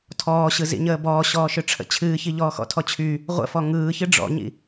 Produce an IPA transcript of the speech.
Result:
tʰ ɔː ɕ ɯ z ḭ ɲ əː b ɔː ɕ ɔː ʃ ʏ ʈ͡ʂʰ ə̰ t͡ɕʰ ɨː ç i ʎ ɔː x ɔ̰ tʰ ɔ t͡ɕʰ y | ʁʷ ə̰ f ɔ ŋ ɯː ç ɨ ɖ͡ʐ ɔ̰ ɲ ḭ

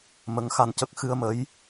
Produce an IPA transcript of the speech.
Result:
m ə˧˥ ŋ x a˧ n c ə˦˥ k̚ x ɨ˧ ə̯ m ə˧˥ j

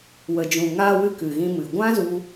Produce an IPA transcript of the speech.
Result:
w ə˨ d͡ʒ ũ˨ ŋ aː˧ w ɨ˦ k ɨ˨ ɣ ĩ˧ m ɨ˨ ɡʷ ã˦ z u˧

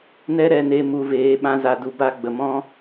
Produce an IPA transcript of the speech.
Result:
n ɛ˦ ɾ ɛ˧ n e˧ m u˧ v eː˨˦ ɓ ã˦ z a˧ d u˧ b a˦ ɡ͡b ə˨ m ɔ̃˦

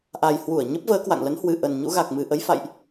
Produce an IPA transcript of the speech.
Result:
ʔ a˨˩ j h w u˧˩ ə̯ ɲ ə˦˥ p̚ v əː˨˦ k w a̰˧˨ ŋ l ə˨˦ n h w ɨ˨˩ ʔ ə˨˩ n ɲ ṵ˧˥ ɣ a˨˩ k̚ m ɨ˨˩ ʔ ə˨˦ j f a̰˧˨ j ʔ

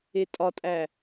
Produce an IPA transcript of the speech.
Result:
e tʼ ɒ tʼ æ

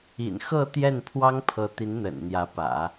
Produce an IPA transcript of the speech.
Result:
ḭ˨˩ n x ɤ˥˧ t̪ j ɛ˥˩ n pʰ w ɑ˥ ŋ pʰ ɤ˧˥ t̪ i˧˥ n n̪ ə̰˨˩ n n̪ j ä˧˥ p ä̰˨˩˦

